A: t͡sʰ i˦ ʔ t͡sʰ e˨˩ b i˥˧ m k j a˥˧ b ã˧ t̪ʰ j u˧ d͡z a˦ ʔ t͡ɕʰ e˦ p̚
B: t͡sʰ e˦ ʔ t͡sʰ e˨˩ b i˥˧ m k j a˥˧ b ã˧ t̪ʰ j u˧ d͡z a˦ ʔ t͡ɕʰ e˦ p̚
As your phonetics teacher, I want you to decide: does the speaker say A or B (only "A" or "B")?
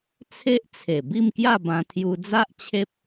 B